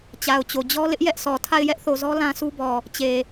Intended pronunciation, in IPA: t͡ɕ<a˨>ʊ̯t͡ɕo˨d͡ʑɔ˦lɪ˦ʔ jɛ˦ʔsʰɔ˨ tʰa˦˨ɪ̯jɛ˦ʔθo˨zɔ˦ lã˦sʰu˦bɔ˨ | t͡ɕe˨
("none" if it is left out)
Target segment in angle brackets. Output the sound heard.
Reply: a˨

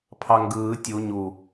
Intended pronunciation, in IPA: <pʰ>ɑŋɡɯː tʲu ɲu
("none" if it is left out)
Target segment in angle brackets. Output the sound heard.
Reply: pʰ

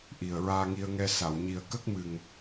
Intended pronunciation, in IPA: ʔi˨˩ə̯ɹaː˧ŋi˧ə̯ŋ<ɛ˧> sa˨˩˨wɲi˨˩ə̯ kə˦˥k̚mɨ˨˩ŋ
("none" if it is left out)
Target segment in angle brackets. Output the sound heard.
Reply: ɛ˧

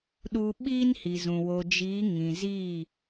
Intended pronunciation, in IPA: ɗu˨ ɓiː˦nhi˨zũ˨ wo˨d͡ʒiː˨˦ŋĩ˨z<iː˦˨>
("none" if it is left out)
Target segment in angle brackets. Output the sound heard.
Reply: iː˦˨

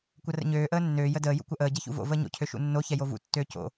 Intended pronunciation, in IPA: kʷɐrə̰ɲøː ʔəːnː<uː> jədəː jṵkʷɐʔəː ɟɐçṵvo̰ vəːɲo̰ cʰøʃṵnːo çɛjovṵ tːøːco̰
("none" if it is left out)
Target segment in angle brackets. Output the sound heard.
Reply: øː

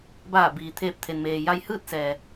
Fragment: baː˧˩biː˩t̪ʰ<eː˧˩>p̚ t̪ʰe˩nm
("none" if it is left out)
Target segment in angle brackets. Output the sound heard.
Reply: eː˧˩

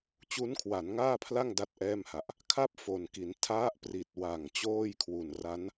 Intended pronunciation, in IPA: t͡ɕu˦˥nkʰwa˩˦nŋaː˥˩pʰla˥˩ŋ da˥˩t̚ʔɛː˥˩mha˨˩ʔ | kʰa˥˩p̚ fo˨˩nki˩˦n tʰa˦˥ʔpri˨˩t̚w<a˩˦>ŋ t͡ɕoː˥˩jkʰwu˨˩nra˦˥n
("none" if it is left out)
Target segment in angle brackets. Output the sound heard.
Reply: a˨˩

